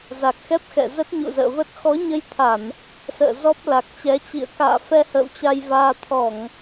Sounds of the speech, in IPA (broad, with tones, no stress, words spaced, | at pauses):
za˨˩k̚xɛ˦˥p̚xɛ̰˧˨ zə˦˥t̚ɲṵ˧˨zə̰ː˧˨və˦˥t̚ xɔ˨˦ɲə˧jt̪ʰa˧˩˨n | sə̰ː˧˨ zɔ˦˥p̚ la˨˩k̚t͡ɕɛ˨˦t͡ɕḭ˧˨ə̯ ka̰ː˧˨fɛ˧ hə̰ː˧˨wt͡ɕa˧jvaː˧ t̪ʰɔ˧˩˨ŋ